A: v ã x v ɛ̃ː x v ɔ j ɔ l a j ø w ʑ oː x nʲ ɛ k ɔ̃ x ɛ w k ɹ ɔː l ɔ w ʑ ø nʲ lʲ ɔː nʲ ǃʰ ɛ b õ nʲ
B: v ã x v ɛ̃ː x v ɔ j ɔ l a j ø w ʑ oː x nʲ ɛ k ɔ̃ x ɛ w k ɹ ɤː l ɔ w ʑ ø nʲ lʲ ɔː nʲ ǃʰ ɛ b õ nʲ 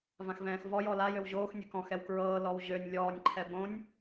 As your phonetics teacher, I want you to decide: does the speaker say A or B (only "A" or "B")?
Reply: B